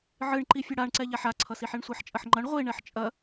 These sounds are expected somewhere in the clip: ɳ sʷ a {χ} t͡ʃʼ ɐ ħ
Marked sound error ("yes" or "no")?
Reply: yes